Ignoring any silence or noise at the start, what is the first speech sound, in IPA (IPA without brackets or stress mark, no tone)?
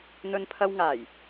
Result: n̪